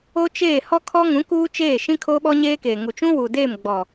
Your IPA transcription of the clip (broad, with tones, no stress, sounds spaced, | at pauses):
o˦ t͡ʃ eː˦˨ h ɔ˦ kʰ ɔ˦ ŋ ũ˨˦ k uː˦ t͡ʃ eː˦˨ ʃ ĩ˦ kʰ oː˦ ɓ ɔ˦ ɲ eː˦ k eː˨ ŋ u˨ t͡ʃ ũ˦ w u˨ d eː˦˨ m ɡ͡b ɔ˨